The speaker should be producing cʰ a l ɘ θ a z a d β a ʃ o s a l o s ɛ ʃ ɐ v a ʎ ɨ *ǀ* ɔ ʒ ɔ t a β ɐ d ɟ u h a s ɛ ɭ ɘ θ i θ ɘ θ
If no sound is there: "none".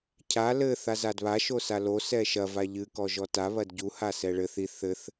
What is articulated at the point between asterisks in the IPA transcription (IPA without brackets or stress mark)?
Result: k